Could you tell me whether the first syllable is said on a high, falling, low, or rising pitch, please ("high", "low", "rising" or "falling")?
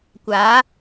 rising